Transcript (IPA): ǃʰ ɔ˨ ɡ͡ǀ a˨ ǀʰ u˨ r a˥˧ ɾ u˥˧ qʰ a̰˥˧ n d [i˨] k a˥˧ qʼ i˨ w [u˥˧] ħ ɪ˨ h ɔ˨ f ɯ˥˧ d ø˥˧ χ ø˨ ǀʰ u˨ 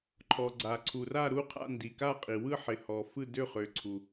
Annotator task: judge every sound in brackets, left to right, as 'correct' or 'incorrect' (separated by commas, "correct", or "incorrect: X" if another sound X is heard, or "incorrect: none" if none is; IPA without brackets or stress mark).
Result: correct, incorrect: ɯ˥˧